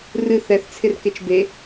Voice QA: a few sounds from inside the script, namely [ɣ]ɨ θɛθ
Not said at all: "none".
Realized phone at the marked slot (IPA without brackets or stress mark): r